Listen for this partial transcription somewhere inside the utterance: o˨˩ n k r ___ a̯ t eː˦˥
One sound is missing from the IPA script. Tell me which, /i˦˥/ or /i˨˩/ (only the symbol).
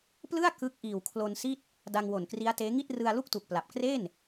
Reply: i˦˥